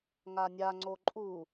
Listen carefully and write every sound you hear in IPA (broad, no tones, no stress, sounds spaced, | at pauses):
ŋ a nʲ a ŋ͡ǀ o ǃʼ u